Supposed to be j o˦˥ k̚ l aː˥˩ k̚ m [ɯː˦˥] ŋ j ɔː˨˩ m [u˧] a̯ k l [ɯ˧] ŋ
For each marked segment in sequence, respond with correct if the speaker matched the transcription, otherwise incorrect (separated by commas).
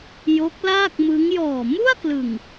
incorrect, incorrect, incorrect